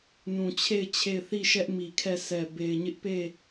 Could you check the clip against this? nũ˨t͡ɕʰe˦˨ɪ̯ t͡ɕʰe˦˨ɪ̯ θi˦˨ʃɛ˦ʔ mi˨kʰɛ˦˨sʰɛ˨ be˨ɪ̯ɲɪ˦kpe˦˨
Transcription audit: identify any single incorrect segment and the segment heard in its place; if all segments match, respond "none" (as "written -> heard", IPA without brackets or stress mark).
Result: k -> ʔ